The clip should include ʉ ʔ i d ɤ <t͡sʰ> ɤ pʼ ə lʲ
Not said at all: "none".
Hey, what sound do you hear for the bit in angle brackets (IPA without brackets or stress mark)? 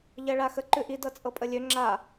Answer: t͡sʼ